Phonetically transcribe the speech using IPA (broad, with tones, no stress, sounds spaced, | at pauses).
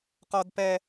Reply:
q ɔ˦ d p ɛ˦